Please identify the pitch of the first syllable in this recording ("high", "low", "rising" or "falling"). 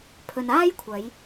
low